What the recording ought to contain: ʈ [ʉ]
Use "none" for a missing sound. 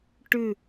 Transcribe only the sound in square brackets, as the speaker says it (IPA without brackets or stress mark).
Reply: ʉ